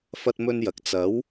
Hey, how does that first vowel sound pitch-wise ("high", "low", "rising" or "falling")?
high